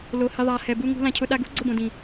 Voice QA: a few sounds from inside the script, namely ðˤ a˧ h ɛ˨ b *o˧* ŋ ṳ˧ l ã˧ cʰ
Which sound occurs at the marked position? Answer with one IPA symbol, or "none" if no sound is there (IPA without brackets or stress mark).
u˧